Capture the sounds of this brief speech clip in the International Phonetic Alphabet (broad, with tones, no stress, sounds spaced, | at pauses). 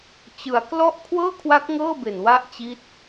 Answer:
t͡ɕ ɯ˩˦ a̯ k l ɔ˥˩ ʔ kʰ w ɤː˥˩ kʰ w a˦˥ k̚ ŋ ɤː˥˩ b e˨˩ n w a˦˥ ʔ t͡ɕ i˦˥ t̚